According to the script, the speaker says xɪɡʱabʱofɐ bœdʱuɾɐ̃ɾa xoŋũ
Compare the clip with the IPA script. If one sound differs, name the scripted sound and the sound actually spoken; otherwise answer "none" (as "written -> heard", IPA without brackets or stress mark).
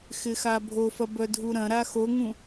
ɡʱ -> x